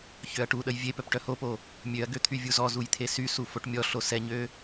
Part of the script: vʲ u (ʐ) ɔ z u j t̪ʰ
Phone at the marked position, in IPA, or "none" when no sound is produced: z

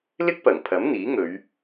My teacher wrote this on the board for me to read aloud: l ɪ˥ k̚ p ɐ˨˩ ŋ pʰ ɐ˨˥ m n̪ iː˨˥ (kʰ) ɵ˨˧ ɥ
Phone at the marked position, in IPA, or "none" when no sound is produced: ŋ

